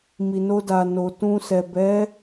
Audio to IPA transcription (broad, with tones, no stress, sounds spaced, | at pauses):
m i˨ n o˧ d a˨ n o˨ t ũ˧ s ɛ˨ b ɛ˨˦